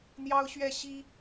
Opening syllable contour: high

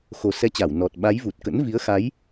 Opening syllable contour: low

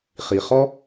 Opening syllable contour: low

